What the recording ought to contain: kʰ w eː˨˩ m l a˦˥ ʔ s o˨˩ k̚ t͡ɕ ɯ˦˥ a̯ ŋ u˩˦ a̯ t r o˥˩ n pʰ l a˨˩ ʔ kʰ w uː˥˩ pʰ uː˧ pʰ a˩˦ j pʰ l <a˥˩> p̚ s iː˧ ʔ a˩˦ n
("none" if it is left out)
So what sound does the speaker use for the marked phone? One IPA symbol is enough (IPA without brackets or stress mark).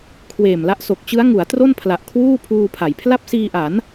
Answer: a˥˩